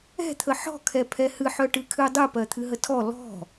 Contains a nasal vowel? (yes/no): no